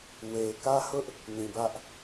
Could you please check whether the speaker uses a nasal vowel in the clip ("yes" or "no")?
yes